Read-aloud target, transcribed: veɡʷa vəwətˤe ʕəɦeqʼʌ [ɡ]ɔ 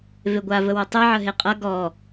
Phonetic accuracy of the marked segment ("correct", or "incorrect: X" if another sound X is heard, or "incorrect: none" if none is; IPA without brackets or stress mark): correct